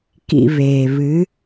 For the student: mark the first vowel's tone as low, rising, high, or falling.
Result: low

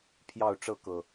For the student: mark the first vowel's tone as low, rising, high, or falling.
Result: falling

